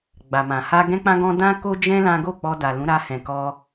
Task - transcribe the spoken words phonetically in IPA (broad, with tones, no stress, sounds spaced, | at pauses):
ɡ͡b a˨ m ã˨ h a˧ ɡ ɛ̃˦ k͡p ã˦ ɡ ɔ̃˦ d ã˦ k o˦ d͡ʒ ɛ̃˦ l ã˦ ɡ o˦˨ k͡p ɔ˧ d a˨ l ũ˨˦ ɾ a˧ h ɛ̃˨ k ɔ˧